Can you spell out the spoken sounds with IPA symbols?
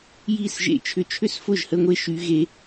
j i˥˩ s ʒ ḛ˥˩ t͡ʃʰ ʏ˦˥ t͡ʃʰ ʏ˥˧ s f ʊ˥˩ ʒ h ə˥˧ ŋʷ e˥˧ ʃ y˦˥ ɣ e˦˥

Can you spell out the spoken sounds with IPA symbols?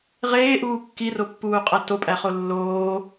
ʁ eː ʔ uː kː i r o pː uː qʼ æ t o pʼ æ χ o lː oː

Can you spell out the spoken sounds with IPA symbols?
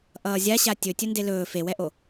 ʔ ʌː zʲ a ɕ a tʲ ɵ tʲ ɵ n d e l ɵː f e w ɛ ʔ o

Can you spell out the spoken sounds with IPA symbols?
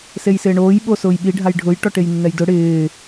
s e j s ɪː ɳ oː j ɓ o s ʊː j ɓ i ɖʱ a j ɖʱ ʊ j ʈ ɔ ʈ e j nː ɛ j d ʊ ɽ ɪː

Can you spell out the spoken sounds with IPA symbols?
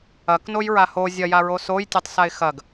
ɐ k n o j ɹ a h o zʲ ɐ j a ɹ o s o j tʲ ɛ tˤ s a ɪ̯ x ɐ ɡ

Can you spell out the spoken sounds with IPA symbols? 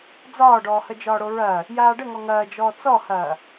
d͡z ɒː ɖ ɔː h ə d͡ʒ ɒː ɽ o ɹ ɐː | j aː ɖ ə ŋ ɔ ŋ ɐː d͡ʒ ɔː t͡s ɔ h ɐː

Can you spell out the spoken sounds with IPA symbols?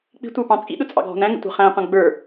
k͡p i̤ tʷ ə˞ p ɑ̃ t͡sʼ ḭ ɗ ʊ t͡sʼ ɑ̰ ɡʱ ɔ̤ n æ̃ ŋ ə̰ tʷ ɑ̤ χ æ̃ qʷ æ̃ ɡ͡b ə˞

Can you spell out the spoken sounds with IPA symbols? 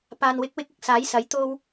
p aː˨ n w ɪ˨˥ k̚ w ɪ˧ k̚ ɪ˨ k̚ s aː˨˥ j s ɐ˨˥ j t̪ o˥ w

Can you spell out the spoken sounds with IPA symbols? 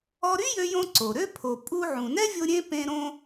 ɔ˧ ɾ y˥ j ø˧ j õ˧ ǀ o˩ ɾ ø˧ pʰ o˩ pʼ u˧ ʕ ũ˩ n ɛ˥ vʲ o˧ ɾʲ ẽ˧ p ẽ˧ ɾ õ˧

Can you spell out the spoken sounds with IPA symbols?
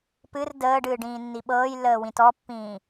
p ɨ r d əː ɖ ɨː ɖ ĩː nː i ɓ ɤː j lː əː w ĩ t ɔ pː ĩː

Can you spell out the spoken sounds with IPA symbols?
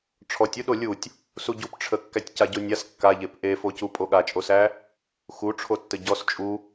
ʈ͡ʂʰ ɔ tʲ u ɗ o lʲ u tʲ | s u ɟ u p ʈ͡ʂʰ ə kː æ tʲ c a ɟ o nʲ a s kː a ʎ e p ʔ e f o c u pʼ o ɠ a t͡ʃʼ o s æ | x u ʈ͡ʂʰ o tː ə ɟ ɔ s t͡ʃʼ u

